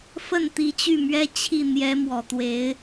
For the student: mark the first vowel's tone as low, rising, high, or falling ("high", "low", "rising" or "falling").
falling